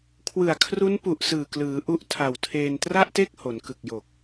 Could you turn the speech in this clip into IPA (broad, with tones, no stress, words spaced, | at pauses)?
kʰwɯ˨˩a̯kʰru˦˥npu˨˩ʔ sɯː˨˩klɯː˩˦ ʔu˦˥ʔtʰa˨˩w tʰeː˧n tra˥˩ʔte˥˩k̚ ho˩˦nkɯ˨˩k̚jo˨˩k̚